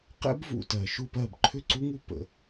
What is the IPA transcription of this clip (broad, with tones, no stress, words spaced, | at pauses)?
qɛ̰˦˥bvṵ˨˩tɜ˨˩ ʃu˥˨pɜ˥˨b ǃʰʏ˥˨ǀu˦˥ŋu˥˨ pə̰˨˩